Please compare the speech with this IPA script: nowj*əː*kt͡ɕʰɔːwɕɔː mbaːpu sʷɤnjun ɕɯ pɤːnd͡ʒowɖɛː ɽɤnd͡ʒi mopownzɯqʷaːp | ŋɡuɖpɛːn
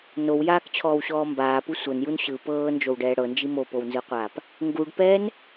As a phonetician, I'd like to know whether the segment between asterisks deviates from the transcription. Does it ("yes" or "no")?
yes